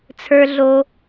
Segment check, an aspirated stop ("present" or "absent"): present